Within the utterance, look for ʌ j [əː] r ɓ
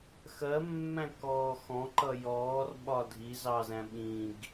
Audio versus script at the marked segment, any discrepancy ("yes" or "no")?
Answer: yes